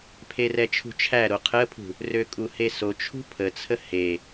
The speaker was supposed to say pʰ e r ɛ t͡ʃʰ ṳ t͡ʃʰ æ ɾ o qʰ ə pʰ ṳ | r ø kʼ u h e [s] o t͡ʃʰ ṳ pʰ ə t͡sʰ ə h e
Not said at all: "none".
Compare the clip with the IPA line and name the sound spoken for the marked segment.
s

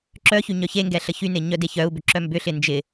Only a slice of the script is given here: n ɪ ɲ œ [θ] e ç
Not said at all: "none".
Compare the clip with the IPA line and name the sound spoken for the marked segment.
d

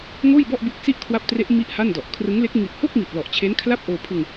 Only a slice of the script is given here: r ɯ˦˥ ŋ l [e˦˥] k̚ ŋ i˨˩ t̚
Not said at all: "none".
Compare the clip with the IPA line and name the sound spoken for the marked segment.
e˦˥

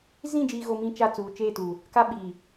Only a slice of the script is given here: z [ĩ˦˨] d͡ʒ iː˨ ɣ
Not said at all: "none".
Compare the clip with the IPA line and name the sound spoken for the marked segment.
ĩ˦˨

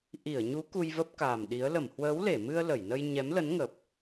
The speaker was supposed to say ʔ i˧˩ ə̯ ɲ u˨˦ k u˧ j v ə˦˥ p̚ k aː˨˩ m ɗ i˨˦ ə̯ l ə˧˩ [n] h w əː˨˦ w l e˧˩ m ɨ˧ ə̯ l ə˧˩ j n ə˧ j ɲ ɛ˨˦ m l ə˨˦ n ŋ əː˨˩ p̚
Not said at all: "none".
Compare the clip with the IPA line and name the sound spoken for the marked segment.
m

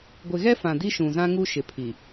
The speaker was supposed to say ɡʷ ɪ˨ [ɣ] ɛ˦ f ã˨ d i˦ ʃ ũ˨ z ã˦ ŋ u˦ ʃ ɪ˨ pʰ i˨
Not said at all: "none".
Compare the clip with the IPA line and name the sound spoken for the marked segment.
ɣ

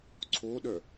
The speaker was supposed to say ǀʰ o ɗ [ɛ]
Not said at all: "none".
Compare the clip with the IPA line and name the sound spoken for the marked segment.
œ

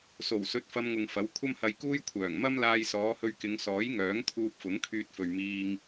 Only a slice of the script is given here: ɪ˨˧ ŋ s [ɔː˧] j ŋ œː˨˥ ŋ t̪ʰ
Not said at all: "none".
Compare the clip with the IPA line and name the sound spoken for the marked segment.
ɔː˨˥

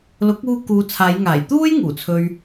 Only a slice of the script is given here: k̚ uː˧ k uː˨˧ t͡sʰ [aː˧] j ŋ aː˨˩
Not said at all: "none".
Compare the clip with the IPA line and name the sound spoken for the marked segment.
aː˨˧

